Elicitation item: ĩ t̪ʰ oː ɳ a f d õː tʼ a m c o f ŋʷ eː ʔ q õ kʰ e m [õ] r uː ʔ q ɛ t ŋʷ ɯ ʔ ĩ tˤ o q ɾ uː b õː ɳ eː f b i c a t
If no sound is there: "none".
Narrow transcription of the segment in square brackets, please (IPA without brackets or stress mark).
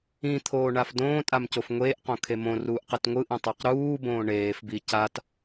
õ